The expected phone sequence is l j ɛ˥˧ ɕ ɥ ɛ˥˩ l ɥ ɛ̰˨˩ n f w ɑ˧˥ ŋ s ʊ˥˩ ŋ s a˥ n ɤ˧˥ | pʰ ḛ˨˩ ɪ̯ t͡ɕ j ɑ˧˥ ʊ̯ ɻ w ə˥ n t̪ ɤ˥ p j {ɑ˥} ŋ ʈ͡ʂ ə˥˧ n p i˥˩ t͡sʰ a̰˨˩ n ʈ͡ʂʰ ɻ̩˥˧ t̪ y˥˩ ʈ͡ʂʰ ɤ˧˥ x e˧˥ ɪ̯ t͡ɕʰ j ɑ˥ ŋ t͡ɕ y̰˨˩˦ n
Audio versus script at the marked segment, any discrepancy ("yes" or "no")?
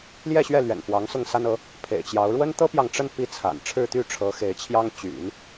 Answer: yes